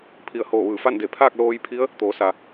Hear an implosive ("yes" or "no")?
no